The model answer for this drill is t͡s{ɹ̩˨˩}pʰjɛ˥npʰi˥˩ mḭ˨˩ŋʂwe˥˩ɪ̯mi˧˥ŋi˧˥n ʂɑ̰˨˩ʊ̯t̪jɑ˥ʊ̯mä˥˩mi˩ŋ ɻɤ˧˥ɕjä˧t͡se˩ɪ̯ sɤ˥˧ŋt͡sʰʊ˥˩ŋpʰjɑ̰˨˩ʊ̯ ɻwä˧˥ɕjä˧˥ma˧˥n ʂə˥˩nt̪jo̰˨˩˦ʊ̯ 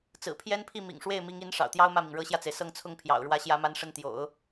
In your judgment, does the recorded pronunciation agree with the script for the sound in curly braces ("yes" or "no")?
yes